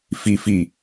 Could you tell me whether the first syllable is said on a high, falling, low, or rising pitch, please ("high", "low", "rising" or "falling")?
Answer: low